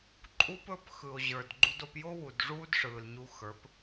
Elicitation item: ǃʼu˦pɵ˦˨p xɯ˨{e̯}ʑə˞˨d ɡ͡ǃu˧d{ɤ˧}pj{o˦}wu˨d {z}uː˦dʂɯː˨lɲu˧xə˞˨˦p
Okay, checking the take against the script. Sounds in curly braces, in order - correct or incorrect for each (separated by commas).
incorrect, incorrect, correct, incorrect